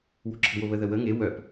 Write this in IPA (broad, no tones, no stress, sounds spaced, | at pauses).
w o̤ ǁʰ ə̤ w o β ə ð ə w ə ŋ e w œ p